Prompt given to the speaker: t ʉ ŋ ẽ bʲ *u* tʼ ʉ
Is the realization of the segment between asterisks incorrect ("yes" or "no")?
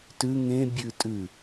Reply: yes